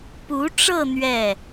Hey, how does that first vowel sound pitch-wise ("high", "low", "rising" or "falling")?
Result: rising